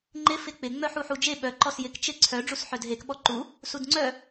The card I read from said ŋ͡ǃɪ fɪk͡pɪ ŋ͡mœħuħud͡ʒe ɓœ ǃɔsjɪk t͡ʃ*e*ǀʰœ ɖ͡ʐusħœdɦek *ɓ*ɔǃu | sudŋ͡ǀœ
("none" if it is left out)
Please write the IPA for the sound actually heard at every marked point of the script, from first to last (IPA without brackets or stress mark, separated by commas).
e, ɓ